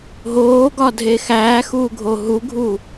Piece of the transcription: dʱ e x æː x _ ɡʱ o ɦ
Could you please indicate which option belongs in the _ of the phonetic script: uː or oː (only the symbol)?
uː